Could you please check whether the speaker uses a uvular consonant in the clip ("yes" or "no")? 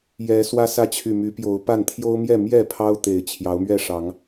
no